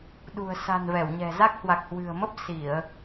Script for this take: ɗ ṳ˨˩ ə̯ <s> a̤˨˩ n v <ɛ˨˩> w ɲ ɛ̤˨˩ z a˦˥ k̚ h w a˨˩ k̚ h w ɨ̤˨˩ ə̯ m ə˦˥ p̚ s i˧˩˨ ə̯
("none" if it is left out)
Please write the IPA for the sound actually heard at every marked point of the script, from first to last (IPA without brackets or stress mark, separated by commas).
s, ɛ˧˩